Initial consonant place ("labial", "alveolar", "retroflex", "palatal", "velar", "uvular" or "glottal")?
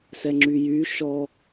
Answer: alveolar